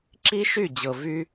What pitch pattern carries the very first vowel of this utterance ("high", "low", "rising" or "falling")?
high